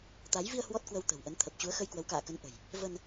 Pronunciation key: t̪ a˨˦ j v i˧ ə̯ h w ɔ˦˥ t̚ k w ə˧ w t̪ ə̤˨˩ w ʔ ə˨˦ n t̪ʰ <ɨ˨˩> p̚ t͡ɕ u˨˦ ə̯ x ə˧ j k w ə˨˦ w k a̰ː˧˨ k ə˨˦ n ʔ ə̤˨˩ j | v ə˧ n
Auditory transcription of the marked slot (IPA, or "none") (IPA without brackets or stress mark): ə˨˩